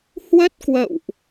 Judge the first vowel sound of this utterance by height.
mid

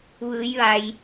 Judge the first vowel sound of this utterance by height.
high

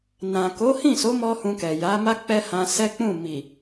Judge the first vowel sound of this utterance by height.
low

